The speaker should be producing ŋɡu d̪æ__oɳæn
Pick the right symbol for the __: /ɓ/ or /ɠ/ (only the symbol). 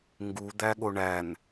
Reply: ɠ